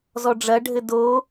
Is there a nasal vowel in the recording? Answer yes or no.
no